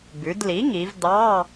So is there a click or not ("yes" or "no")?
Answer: no